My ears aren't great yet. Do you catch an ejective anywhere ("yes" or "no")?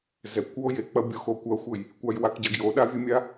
no